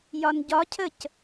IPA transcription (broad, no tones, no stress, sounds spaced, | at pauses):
j ɒ n ɟ ɒ cʰ ə c